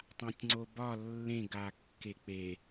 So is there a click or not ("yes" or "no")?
yes